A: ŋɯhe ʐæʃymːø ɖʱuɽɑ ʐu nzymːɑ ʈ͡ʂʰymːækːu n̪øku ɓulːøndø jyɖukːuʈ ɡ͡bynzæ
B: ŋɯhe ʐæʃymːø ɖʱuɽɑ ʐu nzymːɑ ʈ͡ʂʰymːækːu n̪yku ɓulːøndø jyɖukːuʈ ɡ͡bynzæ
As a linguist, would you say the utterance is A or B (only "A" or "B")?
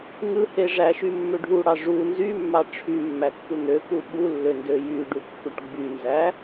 A